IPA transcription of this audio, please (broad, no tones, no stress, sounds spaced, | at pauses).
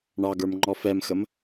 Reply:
ɳ ɑ ɡ ə˞ m ŋ͡ǃ ɔ f ɛ m x ə m